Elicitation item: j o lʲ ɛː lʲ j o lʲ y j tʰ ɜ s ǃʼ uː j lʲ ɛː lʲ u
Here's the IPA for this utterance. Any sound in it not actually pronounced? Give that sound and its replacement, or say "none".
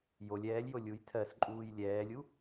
y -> u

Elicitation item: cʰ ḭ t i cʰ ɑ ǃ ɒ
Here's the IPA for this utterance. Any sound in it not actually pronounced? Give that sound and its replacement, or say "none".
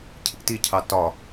ǃ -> t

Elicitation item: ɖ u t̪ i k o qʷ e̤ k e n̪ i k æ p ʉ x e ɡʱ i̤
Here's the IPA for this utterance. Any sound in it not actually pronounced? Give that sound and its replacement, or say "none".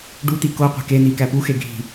ʉ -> u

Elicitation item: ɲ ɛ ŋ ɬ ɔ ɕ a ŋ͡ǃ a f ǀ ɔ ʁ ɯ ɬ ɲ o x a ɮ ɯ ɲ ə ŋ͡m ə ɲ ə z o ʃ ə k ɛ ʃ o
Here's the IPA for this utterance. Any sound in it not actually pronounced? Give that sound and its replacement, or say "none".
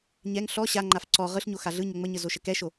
none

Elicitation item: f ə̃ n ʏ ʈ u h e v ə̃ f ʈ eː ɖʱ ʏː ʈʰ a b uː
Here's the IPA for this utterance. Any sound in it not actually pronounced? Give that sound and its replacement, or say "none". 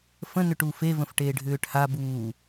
h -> f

